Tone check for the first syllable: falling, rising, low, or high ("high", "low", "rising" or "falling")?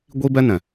high